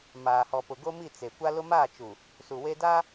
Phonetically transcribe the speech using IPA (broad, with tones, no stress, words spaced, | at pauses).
maː˨hɔ˨pʊ˨ɡo˦ mi˦˨t͡se˨kʷa˦lʊ˦ maː˦˨t͡ʃu˨ | su˨we˦ da˦